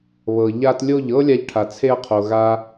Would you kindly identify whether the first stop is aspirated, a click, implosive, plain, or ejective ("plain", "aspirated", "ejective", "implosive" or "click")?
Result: plain